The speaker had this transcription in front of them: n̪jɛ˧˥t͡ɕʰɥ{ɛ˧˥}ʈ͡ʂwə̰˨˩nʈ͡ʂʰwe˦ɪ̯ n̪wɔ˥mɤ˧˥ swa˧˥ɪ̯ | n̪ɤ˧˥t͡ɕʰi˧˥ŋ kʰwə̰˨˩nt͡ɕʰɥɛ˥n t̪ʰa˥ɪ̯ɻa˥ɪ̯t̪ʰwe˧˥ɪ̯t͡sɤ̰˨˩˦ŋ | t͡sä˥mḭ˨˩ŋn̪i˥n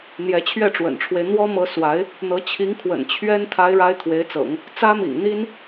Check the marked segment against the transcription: incorrect: ɛ˥˩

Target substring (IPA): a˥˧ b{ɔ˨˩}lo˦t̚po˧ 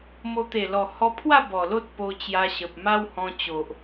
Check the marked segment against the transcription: correct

